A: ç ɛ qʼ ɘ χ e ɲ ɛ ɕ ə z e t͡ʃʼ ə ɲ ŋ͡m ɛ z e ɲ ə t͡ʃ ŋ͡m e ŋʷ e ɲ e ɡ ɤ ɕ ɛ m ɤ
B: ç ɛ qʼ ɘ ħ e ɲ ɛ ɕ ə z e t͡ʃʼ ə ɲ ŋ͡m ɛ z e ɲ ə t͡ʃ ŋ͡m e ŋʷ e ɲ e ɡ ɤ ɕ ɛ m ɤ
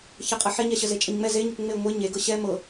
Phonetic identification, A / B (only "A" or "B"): B